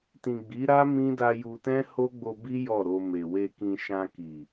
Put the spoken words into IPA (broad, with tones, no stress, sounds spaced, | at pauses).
t ĩ˨ ɡ͡b i˨˦ ɾ a˦ m ĩ˦ d a˧ j u˧ t ɛ̃˦ h o˦ ɡ͡b o˧ b i˦ j ɔ˦˨ ɾ o˧ m e˨ w e˧ k ĩ˧ ʃ ã˧ k i˨